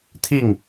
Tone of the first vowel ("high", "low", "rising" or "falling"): falling